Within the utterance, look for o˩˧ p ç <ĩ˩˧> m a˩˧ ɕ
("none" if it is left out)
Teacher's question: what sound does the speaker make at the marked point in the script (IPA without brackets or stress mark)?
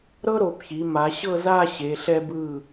i˩˧